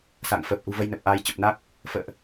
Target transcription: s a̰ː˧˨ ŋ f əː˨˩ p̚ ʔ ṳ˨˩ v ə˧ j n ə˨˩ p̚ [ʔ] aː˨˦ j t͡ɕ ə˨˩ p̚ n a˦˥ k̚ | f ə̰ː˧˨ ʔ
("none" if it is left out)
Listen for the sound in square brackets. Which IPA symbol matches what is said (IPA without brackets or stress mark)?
ʔ